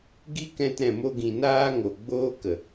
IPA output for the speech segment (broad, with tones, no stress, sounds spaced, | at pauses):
ɡ i˦ k ɛ̃˧ t ɾ ɛ̃˨ m o˧ ɡ ĩ˨ n aː˦ ŋ o˨ ɡ͡b oː˦ k ə˨